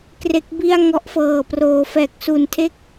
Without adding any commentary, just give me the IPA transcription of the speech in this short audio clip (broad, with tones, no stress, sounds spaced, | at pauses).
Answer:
k r e˦˥ k̚ b i˥˩ a̯ ŋ ɔ˦˥ ʔ f ɤː˨˩ p r oː˩˦ f ɛː˨˩ k̚ s u˨˩ n tʰ e˥˩ k̚